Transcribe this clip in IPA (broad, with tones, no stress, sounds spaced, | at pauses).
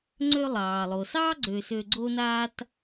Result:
ŋ͡ǀ ø˧ lˠ ɑː˩ lˠ o˩ s ɑː˥ ɡ͡ǀ ø˧ s ø˧ ɡ͡ǀ o˥ n aː˥ t